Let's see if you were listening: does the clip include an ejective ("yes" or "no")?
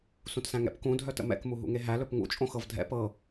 yes